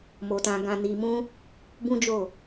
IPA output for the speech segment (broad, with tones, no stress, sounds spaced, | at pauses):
m o˨ t ã˨ ɡ ã˨ n i˨ m ũ˧ | b ũ˦ d͡ʒ o˦˨